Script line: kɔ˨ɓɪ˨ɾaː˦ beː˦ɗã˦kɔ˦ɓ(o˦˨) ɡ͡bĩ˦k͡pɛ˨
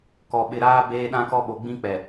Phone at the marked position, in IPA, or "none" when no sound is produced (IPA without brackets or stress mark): o˨